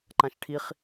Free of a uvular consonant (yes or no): no